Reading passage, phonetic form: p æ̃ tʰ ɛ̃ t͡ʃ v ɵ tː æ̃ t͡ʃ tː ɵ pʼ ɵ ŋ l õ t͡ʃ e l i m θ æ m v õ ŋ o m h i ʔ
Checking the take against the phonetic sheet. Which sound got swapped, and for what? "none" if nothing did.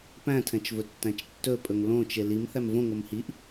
none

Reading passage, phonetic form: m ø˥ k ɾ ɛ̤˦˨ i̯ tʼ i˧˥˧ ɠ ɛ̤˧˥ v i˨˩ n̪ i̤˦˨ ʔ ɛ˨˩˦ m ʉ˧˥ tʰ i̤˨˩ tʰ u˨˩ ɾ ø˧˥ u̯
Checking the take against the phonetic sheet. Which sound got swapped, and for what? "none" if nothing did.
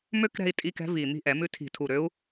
ɠ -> k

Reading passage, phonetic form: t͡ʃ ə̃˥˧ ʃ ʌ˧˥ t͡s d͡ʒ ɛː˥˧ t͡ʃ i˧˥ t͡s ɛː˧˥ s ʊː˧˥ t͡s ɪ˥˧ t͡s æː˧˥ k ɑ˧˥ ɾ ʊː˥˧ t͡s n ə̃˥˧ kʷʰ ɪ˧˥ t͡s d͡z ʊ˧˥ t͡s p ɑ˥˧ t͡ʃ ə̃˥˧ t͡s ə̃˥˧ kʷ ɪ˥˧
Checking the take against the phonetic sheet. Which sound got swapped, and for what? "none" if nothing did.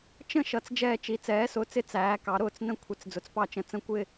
none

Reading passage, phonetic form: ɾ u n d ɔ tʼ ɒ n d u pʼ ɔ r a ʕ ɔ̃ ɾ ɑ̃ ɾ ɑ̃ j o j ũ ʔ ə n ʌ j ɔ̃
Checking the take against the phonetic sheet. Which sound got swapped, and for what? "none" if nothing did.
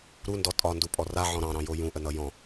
none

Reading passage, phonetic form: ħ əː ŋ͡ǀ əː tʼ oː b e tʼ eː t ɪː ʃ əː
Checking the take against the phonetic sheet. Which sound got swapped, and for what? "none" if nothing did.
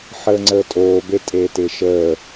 none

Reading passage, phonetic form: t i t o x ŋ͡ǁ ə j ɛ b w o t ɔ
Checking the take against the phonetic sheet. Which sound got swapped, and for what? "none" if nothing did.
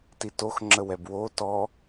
j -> w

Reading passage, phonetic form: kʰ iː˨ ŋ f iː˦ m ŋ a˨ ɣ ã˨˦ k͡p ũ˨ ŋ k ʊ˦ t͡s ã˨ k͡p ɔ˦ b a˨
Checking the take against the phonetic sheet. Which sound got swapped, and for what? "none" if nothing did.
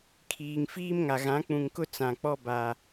none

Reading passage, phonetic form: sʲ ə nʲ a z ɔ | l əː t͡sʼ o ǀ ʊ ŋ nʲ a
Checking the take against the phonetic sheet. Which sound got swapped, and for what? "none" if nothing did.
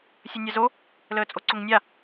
ɔ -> o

